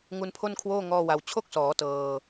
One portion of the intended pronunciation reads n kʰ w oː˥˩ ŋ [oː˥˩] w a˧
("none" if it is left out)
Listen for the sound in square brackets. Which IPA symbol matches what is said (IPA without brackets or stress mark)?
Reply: ɔː˥˩